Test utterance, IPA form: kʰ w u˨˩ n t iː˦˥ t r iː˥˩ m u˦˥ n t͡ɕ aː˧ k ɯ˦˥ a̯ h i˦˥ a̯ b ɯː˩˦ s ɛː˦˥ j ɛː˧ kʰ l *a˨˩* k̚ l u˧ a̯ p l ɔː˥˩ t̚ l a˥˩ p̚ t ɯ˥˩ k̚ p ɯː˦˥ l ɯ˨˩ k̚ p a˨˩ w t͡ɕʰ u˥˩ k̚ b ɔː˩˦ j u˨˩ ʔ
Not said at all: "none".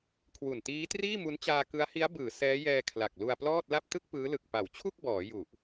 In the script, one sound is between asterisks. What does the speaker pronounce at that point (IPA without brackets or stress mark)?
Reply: a˨˩